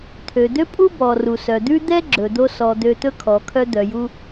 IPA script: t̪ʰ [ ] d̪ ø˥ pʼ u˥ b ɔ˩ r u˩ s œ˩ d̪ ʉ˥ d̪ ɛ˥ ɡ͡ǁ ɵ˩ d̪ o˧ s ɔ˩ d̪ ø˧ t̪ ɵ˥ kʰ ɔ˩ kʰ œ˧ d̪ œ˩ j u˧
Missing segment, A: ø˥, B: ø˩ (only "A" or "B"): B